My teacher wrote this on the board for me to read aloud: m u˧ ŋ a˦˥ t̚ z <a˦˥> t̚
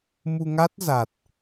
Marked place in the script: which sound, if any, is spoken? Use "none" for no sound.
a˨˩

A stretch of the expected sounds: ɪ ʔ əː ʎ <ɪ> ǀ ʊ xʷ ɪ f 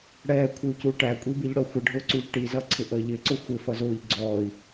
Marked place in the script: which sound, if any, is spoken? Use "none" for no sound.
ɪ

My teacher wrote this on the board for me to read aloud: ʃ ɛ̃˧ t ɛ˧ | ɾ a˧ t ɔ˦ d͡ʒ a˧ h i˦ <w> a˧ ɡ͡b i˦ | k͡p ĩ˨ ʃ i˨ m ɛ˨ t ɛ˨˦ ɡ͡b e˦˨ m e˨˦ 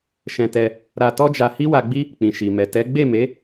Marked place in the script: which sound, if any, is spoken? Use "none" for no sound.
w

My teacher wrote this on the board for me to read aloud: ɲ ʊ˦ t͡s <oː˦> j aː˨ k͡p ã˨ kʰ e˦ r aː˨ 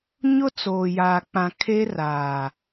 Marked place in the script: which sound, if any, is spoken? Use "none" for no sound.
oː˨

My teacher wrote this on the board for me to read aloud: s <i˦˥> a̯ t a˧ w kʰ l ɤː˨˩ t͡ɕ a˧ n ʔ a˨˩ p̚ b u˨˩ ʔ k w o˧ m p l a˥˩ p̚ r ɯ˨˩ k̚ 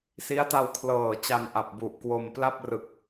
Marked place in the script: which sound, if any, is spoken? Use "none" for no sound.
i˦˥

